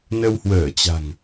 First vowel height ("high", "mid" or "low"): mid